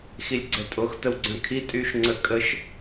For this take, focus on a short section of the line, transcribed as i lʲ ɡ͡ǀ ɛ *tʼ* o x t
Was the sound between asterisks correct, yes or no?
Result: yes